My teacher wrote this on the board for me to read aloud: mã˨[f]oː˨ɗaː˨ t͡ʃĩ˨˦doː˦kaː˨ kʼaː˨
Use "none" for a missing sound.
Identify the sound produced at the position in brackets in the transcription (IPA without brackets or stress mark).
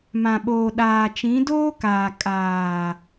ɓ